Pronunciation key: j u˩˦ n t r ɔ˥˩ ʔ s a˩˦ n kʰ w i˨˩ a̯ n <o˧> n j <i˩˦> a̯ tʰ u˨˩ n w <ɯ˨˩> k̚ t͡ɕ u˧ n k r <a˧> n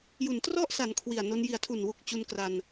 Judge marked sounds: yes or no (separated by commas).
yes, yes, no, yes